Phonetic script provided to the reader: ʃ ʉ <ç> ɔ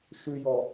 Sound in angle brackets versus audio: incorrect: j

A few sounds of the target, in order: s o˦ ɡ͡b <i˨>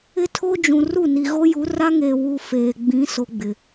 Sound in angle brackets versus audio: incorrect: ɪ˨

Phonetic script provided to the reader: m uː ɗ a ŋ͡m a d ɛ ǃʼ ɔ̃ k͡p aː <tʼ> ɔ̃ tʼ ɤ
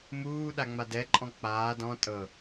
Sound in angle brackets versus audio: incorrect: d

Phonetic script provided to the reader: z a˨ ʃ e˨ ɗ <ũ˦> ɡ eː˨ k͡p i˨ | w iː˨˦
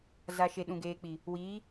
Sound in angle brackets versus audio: incorrect: ũ˨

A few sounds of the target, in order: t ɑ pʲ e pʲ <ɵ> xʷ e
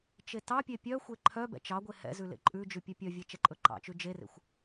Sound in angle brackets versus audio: incorrect: œ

